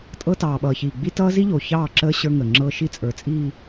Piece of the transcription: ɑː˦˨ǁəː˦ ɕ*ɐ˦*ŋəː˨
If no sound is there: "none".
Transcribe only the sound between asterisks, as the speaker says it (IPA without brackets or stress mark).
ə˞˦